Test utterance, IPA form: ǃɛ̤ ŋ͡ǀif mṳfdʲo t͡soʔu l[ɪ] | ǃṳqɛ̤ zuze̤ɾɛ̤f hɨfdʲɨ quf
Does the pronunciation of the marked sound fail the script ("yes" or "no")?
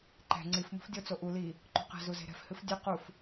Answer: yes